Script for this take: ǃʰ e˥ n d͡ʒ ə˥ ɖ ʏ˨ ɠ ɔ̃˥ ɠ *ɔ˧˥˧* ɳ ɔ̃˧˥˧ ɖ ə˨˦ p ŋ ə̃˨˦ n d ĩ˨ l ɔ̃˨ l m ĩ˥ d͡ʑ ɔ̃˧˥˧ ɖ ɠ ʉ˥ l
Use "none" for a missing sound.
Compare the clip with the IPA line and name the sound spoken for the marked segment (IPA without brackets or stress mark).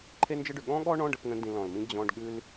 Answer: ɔ˥